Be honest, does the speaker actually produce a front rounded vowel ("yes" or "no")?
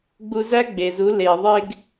no